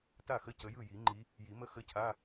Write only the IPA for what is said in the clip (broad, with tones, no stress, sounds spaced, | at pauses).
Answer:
t a˥˩ x ə˧˥˧ c ə˨˦ j ɯ˥˩ j i˨˩˦ ŋ͡ǃ i˨˦ | j i˨˩˦ m ə˦˥ x ə˧˥˧ cʰ a˧˥˧